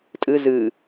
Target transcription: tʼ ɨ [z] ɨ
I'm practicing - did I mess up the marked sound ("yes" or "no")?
no